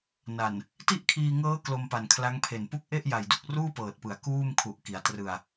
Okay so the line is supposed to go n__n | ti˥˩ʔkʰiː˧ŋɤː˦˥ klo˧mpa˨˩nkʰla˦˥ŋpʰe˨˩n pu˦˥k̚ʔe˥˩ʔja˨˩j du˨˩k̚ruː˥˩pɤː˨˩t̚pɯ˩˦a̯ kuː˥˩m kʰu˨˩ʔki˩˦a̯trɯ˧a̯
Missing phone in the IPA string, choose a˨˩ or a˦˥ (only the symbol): a˨˩